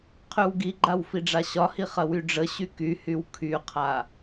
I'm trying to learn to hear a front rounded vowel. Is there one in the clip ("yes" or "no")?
yes